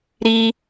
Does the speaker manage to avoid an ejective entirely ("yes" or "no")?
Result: yes